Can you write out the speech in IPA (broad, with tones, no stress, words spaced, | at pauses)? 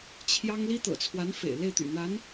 t͡ɕʰjɑ˥ŋ li˥t̪ɤ̰˨˩t͡sʰwa˧˥n fḛ˨˩ɪ̯ le˥˩ɪ̯t̪y̰˨˩n̪a˧˥n